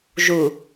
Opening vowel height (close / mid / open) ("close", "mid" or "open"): close